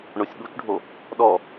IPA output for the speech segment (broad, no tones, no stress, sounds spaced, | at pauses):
ɳ o sʲ ɠ u t͡ʃ ɖʱ o | ɗ ɔ